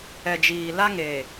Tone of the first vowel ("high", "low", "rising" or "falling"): low